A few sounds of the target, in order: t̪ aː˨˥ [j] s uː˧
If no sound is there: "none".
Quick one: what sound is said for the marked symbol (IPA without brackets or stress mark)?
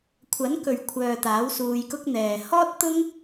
w